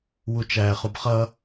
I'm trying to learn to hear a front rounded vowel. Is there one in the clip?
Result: no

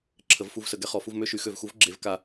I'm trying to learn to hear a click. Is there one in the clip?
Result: yes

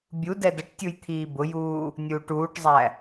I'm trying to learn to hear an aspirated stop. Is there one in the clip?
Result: yes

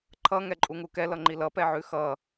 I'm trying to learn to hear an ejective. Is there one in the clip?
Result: yes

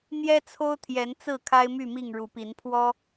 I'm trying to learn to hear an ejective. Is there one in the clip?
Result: no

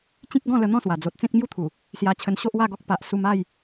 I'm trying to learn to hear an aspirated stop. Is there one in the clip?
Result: yes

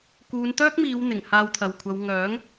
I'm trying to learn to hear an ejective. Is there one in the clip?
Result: no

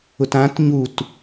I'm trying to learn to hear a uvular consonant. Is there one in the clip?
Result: no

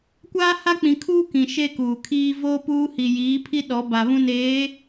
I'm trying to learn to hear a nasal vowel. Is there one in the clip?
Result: yes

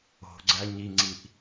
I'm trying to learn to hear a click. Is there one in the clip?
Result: yes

